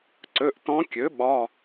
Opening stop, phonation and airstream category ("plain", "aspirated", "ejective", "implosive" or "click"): click